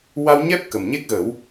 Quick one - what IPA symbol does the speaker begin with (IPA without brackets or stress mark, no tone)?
w